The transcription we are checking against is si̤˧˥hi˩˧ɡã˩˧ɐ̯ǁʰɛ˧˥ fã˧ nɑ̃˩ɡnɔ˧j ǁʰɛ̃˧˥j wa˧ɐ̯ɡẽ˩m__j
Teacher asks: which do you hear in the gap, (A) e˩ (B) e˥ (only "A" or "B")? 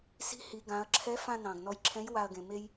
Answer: B